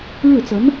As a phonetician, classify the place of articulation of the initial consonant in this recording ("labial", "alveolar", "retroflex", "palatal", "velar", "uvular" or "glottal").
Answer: retroflex